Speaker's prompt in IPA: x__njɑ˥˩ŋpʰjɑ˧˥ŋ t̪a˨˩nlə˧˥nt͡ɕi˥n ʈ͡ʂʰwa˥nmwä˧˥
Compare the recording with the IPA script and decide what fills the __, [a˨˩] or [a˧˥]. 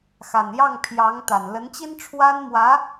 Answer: a˨˩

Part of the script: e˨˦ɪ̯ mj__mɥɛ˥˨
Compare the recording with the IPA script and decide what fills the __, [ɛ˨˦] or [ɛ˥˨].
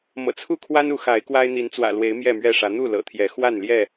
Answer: ɛ˥˨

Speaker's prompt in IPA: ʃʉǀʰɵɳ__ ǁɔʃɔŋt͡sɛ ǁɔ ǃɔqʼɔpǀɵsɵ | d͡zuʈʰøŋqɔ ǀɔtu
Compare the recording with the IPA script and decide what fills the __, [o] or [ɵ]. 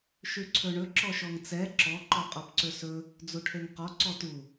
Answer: ɵ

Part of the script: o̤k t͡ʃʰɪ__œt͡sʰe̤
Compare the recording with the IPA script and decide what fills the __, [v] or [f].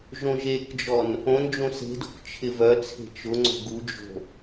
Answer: v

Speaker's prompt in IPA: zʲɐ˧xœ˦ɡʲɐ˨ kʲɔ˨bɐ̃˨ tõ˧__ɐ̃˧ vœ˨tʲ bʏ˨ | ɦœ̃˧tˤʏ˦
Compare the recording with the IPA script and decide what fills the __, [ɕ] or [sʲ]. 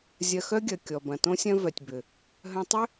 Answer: sʲ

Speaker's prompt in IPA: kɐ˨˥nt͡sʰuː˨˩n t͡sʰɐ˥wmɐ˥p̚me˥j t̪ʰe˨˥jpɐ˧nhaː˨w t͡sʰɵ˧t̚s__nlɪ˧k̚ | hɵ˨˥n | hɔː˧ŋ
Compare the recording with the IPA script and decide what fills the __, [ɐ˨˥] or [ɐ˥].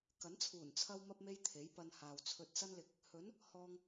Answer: ɐ˥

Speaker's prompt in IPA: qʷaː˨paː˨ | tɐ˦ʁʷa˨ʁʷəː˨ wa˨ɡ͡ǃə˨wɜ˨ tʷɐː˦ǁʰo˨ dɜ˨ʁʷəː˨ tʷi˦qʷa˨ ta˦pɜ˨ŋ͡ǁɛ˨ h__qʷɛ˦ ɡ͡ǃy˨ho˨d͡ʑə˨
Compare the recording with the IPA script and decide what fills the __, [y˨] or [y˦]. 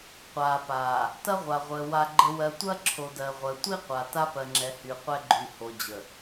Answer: y˨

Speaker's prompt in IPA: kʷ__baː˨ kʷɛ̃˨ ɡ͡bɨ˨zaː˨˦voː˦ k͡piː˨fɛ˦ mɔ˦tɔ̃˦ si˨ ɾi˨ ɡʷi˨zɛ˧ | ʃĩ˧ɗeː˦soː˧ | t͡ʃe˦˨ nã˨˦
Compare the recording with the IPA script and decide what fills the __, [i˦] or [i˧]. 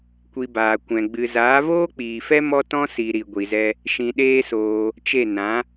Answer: i˧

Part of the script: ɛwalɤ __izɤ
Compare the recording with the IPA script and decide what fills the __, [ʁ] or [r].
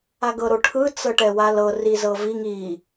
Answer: r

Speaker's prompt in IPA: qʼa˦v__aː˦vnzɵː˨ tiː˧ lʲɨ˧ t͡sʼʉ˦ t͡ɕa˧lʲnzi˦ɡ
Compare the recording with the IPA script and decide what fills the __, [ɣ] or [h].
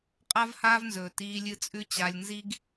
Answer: h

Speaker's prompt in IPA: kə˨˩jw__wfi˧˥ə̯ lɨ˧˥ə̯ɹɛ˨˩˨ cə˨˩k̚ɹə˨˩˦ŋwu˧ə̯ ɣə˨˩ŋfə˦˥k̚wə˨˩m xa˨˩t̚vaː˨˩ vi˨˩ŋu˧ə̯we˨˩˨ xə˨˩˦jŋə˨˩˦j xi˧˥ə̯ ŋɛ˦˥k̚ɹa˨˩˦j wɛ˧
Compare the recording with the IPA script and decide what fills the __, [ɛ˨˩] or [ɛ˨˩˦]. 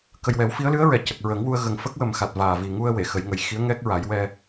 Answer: ɛ˨˩˦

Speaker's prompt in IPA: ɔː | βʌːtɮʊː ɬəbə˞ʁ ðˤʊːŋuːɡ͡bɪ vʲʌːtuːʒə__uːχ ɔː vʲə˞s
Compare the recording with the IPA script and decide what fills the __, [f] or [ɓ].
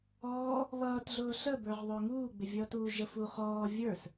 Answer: f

